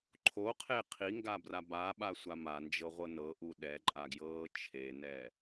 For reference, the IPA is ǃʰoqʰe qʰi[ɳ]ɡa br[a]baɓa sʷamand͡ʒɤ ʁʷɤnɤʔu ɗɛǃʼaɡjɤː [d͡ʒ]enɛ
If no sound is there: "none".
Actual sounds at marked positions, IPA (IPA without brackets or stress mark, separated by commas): ŋ, a, t͡ʃʰ